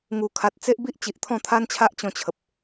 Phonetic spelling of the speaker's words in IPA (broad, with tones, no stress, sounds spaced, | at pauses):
ŋ u˨˩ kʰ a˨ t̚ t͡s e˦ ʔ b i˦ ʔ t͡ɕ i˨ ʔ t̪ʰ ɔ̃˥˧ t̪ʰ a˦ n t͡ɕʰ a˦ ʔ t͡ɕ ɔ̃˧ t͡ɕʰ ə˨ p̚